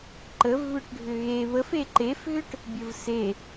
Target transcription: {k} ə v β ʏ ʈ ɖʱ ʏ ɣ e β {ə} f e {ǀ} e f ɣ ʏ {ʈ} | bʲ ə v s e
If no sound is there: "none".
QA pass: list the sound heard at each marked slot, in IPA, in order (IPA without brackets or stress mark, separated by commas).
ǃ, ə, ǃ, ʈ